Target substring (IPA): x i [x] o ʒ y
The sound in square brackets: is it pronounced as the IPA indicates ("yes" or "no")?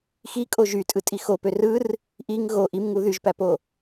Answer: no